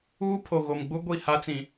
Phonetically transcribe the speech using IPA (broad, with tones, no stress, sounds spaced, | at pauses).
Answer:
uː˦ pʰ o˨ ɣ o˨ m ɡ͡b u˦ ɡʷ i˦˨ h a˦ t͡s ĩ˨